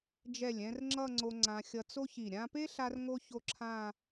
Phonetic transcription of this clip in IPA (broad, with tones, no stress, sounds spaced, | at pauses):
d͡ʒ ɛ˧˩ lʲ ɛ̃˧ r ŋ͡ǁ ʌ˥˧ ŋ͡ǀ o˧ ŋ͡ǀ ã˧ xʲ ʌ˧ t͡s o˥ ç i˧˩ ɾʲ ã˧ p e˥ ɬ a˥ r ŋ o˥ ç o˥˧ ǁʰ ã˥˧